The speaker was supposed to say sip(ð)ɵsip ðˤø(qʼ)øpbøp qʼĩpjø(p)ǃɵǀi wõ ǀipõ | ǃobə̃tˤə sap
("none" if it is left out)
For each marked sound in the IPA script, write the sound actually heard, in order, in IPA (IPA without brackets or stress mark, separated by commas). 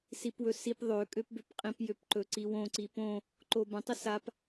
w, kʼ, p